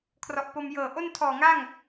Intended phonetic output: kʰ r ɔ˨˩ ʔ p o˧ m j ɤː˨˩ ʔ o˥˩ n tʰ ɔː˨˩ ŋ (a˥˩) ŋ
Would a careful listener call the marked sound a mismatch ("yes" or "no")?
no